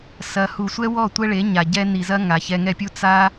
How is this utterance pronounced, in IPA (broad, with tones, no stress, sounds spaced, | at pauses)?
s ɐ˧ h u˨ sʷ ɛ˦ w ɔ˦˨ tʷ ɛ˦ ɭ e˨˦ ɲ a˨ ɟ ɛ˧ n i˨ z ɐ˦ ŋ a˨ ç ɛ˧ ŋ ɛ˦ pʲ u˦ t͡s a˦